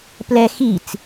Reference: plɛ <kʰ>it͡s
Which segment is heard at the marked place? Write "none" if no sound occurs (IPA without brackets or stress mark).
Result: x